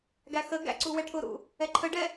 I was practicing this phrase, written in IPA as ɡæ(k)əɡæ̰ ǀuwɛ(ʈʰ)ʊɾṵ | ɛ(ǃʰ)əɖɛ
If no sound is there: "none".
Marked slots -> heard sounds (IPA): x, ʈʰ, ǃʰ

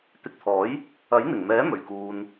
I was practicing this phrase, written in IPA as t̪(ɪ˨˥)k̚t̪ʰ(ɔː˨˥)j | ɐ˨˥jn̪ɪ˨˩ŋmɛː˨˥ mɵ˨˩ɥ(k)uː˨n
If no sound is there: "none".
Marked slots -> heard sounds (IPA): ɪ˧, ɔː˨˥, k

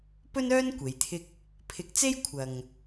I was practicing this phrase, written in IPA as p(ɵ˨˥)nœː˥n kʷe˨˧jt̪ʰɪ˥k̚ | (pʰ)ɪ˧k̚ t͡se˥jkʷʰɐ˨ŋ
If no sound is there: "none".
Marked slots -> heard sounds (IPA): ɵ˥, pʰ

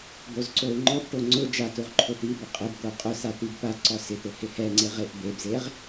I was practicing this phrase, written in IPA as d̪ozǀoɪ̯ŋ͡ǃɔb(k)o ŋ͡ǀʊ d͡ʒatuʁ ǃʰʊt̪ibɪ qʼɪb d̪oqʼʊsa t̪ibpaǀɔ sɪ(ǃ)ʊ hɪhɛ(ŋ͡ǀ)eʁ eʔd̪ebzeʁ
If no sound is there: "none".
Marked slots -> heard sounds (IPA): ʈ, t̪, ŋ͡ǀ

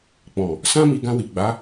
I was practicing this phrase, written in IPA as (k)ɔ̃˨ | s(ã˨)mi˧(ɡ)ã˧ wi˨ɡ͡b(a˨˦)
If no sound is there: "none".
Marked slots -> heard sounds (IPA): k͡p, ã˦, ɡ, a˨˦

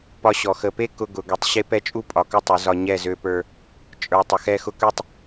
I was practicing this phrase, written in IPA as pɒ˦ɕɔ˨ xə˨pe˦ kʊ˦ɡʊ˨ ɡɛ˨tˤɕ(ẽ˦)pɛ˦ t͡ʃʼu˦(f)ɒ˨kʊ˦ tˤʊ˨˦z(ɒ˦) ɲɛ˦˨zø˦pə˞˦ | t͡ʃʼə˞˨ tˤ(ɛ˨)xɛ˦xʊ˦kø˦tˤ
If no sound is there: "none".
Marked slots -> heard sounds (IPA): e˦, pʼ, ɒ˦, ə˨

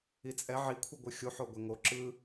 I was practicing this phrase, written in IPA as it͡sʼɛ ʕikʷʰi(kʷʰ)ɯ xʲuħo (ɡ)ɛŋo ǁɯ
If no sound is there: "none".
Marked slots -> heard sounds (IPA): ɡʷ, ɡʷ

